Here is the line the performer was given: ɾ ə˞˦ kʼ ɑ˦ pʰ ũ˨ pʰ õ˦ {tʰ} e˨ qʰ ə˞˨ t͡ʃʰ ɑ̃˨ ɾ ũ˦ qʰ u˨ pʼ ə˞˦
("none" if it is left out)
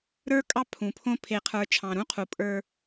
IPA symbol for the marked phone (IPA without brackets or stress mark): pʰ